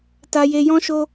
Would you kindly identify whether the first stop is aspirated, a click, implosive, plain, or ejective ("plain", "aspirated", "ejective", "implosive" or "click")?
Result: plain